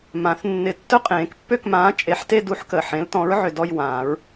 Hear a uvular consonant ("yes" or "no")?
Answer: yes